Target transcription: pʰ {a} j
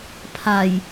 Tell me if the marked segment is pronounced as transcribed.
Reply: yes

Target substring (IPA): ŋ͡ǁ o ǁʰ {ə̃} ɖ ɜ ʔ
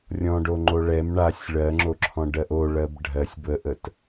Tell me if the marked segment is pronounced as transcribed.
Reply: no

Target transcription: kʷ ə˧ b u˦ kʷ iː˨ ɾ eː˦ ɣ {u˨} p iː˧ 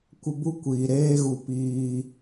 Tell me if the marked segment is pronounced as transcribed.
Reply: no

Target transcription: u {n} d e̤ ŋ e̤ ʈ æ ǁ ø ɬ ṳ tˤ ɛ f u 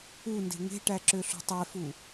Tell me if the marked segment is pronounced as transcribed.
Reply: yes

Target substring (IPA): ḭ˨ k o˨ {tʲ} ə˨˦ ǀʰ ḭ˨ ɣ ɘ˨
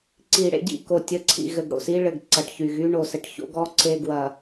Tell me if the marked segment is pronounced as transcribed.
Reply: yes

